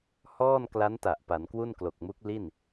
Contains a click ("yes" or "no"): no